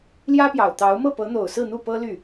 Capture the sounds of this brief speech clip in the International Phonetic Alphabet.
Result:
ljä˥ pjɑ˨˩ʊ̯t̪ɑ˧˥ʊ̯ mɤ˥˩pɤ˧˥n̪o˨˩ʊ̯ sɹ̩˥˧n̪u˥˩pɤ˥ ly˥˩

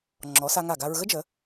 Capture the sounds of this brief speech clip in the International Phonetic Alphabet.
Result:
ŋ͡ǁɔ˩˧ sa˧ŋa˧˩ɡa˧ɹ ɣə˥d͡ʒə˩˧

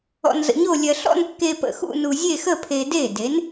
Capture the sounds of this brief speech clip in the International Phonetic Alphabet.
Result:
ɔ̰˧nzə̰˧ɲo˥˧lʲɜ˧ ɬɔ̰˥˧nkːe˧pə̰˧˩ xṵ˥˧ nu˧ zʲe˥˧xə˥˧pʰe˧ de˧˩de˩˧n

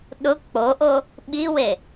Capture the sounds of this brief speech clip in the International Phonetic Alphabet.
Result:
ɗʊ k͡poʔo | ɓiwe

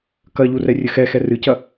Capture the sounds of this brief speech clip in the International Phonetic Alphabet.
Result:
kɐʎurɛrʲɘ xɛxɛ rɨcɐ

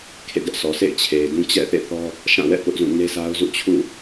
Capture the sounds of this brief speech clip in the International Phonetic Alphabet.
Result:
kʰḛ˦˨dɛ˦ʔsɔ˨ sʰḛ˦˨ɪ̯t͡ɕʰe˨ɪ̯dũ˦ t͡ɕɛ̰˦˨θḛ˦˨θɔ˦ | ʃã˦˨wɛ̰˦˨ pʊ˦ʔzũ˦˨ ne˦sʰa˦ʊ̯ zṵ˦˨t͡ɕʰṵ˦˨

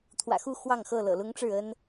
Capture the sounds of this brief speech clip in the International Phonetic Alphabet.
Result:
t̪ʰwä̰˨˩xu˥˨ xwɑ˥˨ŋxɤ˥˨ lɤ̰˨˩lʊ˦ŋʈ͡ʂɻ̩˥˨ə˦n

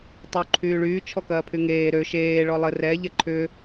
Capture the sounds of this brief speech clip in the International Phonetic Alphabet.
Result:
tˤy ǃʰyːɭyː t͡ʃʰɔkɐːpʰyŋeː ɾø ʃeː ɭɔlˠə rɛ ʎɛǃʰʏ

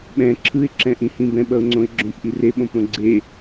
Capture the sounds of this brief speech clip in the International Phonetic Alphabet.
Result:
ɓɛ̃ ǁʰɯɪ̯ǁɛ̃ʔĩhĩ bɛ̃ɓʌʊ̯ŋ͡ǀõɪ̯ ɡ͡ǁõpʔi reɓõpɾõ ɡ͡ǀe

